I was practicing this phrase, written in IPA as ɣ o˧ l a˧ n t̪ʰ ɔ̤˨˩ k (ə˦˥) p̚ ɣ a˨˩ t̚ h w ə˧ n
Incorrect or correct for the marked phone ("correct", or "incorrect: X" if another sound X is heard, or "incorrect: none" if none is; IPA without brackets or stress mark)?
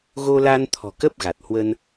correct